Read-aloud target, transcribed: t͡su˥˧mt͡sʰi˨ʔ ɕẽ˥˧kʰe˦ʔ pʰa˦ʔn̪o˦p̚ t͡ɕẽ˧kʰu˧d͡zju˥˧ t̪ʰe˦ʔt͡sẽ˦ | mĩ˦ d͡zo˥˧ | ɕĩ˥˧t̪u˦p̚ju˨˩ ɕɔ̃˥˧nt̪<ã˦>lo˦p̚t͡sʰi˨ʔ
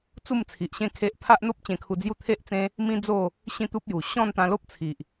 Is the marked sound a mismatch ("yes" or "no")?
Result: yes